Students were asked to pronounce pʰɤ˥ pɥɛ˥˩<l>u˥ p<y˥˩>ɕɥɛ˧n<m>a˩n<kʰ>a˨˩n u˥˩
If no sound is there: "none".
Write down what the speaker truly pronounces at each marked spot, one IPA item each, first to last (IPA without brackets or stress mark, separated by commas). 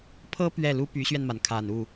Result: l, y˧˥, m, kʰ